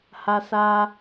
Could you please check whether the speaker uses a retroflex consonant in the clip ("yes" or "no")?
no